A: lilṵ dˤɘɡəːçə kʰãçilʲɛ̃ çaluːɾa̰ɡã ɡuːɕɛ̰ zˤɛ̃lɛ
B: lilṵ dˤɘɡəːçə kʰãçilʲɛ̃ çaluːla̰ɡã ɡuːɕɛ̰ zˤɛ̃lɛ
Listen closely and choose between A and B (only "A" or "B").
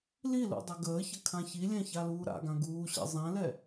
A